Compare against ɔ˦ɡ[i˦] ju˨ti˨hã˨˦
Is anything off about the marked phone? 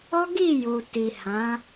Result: yes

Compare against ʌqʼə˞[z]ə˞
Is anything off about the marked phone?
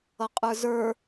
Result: no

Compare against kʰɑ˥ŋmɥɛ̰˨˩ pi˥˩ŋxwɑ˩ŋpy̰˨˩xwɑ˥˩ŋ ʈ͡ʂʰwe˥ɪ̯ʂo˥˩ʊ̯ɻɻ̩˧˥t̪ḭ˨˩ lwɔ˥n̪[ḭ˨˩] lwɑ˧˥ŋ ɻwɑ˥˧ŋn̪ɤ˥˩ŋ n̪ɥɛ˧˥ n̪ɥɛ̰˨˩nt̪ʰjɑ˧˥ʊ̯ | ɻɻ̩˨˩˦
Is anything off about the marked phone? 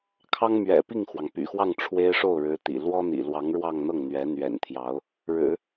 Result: no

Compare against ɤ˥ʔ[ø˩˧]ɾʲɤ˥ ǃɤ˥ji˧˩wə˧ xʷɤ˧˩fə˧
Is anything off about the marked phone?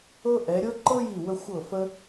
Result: yes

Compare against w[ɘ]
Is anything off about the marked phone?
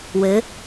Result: no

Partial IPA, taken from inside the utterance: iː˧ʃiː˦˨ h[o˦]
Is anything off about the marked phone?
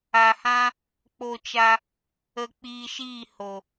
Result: yes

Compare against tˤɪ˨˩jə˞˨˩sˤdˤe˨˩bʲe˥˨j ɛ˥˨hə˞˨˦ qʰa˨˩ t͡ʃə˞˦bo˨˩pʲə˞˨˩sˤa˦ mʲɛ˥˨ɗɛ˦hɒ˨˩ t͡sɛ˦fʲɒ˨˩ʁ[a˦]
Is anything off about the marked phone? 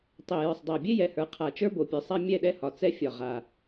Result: yes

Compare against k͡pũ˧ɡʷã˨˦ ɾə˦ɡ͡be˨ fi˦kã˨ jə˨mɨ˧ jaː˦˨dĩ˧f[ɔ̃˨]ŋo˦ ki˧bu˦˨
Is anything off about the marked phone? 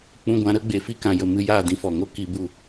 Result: yes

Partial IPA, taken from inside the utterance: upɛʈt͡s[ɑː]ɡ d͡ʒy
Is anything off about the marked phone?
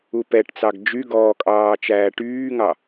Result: yes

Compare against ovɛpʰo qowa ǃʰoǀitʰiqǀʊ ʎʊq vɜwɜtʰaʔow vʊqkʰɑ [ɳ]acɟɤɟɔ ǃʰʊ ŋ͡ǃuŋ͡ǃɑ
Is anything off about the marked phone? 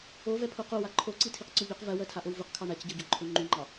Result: no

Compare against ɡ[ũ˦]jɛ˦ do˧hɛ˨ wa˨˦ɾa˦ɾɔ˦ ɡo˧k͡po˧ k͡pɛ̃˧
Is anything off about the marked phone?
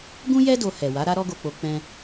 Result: no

